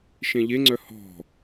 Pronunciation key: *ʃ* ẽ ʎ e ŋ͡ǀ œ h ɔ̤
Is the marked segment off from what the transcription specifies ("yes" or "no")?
no